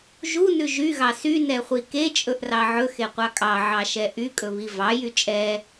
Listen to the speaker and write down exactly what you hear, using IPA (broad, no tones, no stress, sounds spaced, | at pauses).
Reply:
ʒ u n ʉ ʒ y ɣ ɑ s y n ɛ χʷ i k e t͡ʃʼ ɵ ʔ r ɑ ʕ ɵ x e qʷ ɑ kʼ ɑ ʕ ɑ ʃ ɛ ʔ y kʼ ɵ β i v ɑ j y t͡ʃʼ ɛ